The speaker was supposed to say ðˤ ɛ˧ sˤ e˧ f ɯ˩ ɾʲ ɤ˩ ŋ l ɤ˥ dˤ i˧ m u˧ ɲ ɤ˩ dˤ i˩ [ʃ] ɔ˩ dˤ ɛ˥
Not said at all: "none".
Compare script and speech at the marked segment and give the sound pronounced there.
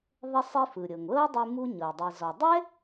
z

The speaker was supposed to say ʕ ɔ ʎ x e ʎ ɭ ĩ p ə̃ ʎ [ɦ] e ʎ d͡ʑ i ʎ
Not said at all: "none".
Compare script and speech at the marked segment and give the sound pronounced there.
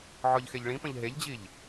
ɦ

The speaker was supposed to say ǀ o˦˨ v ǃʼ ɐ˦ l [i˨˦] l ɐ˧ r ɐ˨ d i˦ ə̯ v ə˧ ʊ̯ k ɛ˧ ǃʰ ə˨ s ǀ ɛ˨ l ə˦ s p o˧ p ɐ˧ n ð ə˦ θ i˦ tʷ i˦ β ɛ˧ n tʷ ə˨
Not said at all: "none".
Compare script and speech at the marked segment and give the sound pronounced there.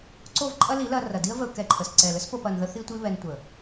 i˨˦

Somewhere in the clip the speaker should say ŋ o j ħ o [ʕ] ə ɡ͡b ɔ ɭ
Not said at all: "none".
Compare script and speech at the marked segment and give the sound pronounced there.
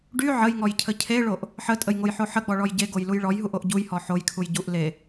ħ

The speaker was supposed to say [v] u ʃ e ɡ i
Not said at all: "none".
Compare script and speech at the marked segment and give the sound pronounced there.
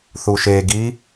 θ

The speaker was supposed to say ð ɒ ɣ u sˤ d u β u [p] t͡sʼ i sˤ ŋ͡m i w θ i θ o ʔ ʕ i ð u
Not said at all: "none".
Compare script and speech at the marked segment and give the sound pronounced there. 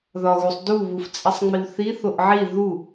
f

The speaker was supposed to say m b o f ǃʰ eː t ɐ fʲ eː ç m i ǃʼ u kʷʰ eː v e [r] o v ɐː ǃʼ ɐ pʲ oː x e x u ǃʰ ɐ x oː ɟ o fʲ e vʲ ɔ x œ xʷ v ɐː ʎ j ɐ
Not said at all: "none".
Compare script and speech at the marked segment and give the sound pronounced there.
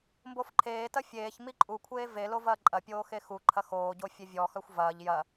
l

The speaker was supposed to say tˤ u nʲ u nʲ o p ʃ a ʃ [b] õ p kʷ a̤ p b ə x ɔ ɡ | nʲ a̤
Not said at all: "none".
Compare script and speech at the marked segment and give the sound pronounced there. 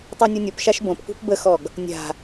b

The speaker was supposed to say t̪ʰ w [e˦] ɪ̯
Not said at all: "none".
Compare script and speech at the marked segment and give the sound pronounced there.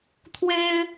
e˦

